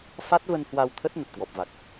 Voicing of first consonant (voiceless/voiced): voiceless